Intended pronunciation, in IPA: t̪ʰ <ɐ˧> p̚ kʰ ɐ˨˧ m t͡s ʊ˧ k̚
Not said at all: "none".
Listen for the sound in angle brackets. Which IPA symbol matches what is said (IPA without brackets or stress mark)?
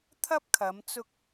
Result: ɐ˥